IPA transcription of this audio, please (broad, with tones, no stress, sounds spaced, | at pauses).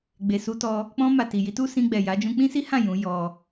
ɡ͡b e˨ s u˧ t ɔ˧ | k͡p ɔ̃˧ m a˨ t i˨ j i˧ t u˦ s ĩ˧ ɡ͡b ɛ˨ j a˨˦ d͡ʒ ũ˧ k͡p ĩ˦ s i˦ h ã˦˨ j ũ˨˦ j ɔ˧